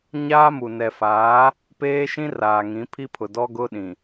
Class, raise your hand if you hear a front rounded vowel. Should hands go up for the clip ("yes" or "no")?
no